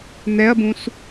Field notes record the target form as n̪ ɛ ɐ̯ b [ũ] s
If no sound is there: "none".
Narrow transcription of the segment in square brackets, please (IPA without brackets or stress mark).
ũ